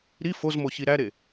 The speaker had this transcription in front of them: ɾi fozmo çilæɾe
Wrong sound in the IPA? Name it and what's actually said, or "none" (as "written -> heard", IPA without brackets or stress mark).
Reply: l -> ɾ